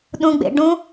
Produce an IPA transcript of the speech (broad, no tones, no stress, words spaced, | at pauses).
ɗũɡ͡bḛ ɖũ